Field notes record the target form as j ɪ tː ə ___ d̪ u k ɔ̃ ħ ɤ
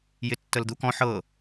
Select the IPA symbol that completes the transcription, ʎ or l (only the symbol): l